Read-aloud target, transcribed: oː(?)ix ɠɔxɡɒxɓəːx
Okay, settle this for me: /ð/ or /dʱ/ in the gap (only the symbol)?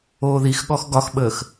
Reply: ð